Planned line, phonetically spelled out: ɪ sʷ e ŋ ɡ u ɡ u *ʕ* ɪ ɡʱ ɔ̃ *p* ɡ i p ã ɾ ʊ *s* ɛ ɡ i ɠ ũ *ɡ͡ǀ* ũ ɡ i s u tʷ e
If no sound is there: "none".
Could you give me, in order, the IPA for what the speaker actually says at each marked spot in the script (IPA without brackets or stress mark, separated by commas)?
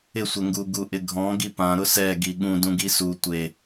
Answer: ʔ, none, s, d